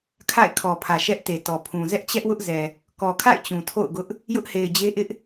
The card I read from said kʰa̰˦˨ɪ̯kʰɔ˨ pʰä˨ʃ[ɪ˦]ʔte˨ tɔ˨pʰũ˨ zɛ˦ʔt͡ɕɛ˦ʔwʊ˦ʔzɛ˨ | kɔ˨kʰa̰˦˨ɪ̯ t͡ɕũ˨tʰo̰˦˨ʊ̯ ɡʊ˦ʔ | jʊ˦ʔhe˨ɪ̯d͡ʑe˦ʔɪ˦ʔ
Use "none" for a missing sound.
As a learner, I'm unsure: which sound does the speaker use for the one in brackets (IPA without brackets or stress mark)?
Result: ɛ˦